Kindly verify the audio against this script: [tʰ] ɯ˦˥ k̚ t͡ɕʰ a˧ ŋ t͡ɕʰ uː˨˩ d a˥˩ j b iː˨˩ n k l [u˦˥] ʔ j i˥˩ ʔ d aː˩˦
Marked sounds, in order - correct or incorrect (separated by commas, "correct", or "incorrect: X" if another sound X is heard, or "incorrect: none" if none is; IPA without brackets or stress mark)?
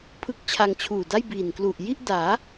incorrect: pʰ, incorrect: u˨˩